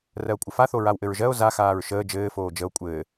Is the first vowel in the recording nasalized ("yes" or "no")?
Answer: no